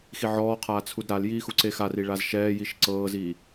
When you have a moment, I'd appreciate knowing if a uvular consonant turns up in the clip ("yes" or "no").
yes